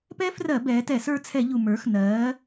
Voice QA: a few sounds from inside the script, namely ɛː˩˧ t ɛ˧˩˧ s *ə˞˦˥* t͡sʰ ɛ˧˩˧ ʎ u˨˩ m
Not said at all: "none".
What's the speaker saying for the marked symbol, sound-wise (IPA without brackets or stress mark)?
ə˞˦˨